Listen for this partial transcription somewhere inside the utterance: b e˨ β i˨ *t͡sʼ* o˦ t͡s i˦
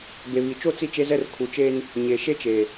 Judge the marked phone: incorrect: t͡ʃ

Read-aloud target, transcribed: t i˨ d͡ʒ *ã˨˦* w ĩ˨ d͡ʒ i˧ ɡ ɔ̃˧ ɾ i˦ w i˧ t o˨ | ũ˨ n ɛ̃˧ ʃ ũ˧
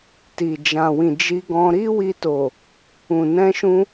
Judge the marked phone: incorrect: ã˨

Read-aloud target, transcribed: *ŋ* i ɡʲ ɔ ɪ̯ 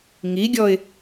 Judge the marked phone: correct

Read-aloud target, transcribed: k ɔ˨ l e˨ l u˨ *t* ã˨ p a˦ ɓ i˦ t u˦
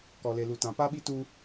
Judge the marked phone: correct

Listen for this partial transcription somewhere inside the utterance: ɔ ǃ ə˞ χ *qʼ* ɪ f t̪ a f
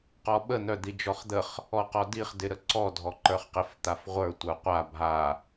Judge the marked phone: incorrect: q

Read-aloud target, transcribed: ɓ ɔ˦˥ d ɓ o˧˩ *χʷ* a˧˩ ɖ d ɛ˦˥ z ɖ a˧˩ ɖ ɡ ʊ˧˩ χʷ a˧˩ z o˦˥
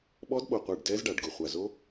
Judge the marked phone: incorrect: qʷ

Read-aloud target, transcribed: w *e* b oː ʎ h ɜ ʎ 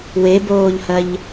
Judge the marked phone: correct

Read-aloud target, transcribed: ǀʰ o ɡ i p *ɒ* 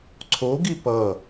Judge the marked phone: incorrect: ʌ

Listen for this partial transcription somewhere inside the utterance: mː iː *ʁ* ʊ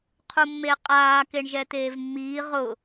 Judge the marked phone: correct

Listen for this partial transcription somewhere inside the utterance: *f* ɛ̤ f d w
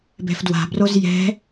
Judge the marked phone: incorrect: b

